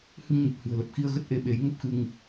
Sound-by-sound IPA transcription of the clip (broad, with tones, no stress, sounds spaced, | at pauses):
h ɨ˧ ŋ ɲ ɨ˨˩ p̚ h ɨ̤˨˩ ə̯ l ə˨˩ p̚ x i˧ ə̯ ɣ ə˦˥ t̚ ʔ e˧ ɓ e˨˦ j ŋ ə˦˥ p̚ x ɨ˧ ŋ